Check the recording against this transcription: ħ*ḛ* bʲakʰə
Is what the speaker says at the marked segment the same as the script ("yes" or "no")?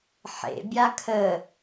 yes